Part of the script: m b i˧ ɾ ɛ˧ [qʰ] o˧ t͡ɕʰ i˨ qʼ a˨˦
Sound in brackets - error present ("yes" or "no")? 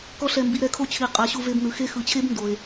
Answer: yes